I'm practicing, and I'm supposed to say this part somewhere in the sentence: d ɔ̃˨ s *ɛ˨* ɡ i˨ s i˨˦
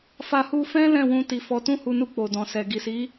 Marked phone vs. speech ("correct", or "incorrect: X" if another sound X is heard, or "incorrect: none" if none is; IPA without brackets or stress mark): correct